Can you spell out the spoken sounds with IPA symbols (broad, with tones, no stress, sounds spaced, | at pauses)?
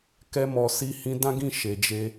k ɛ˧ m ɔ˨ s i˧ h ĩ˧ d ã˦ ɡ ĩ˦˨ ʃ e˨ d͡ʒ e˧